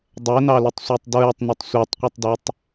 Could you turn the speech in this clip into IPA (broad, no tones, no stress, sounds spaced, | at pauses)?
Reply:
dˤ ɛ n ɑ l ʊ tˤ sʷ æ tˤ d ɹ ɛ tˤ n u tˤ sʷ ɑ tˤ qʷ i tˤ d æ tˤ